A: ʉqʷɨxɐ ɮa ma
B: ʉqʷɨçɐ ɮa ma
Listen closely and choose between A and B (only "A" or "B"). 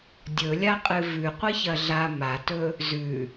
B